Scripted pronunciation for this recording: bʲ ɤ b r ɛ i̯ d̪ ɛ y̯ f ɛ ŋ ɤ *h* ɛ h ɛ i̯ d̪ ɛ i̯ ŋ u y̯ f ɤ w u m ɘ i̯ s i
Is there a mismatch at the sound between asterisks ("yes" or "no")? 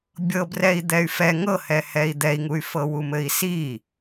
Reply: no